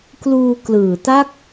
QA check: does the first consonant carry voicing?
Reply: no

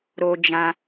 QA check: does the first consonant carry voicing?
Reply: yes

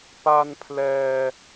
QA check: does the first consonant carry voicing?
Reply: no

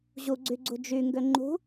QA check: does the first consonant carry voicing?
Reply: yes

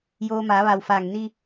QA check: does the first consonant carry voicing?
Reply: yes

